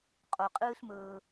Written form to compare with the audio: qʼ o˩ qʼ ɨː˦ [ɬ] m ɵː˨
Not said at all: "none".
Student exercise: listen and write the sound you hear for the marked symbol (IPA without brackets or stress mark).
ɬ